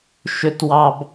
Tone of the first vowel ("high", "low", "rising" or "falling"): low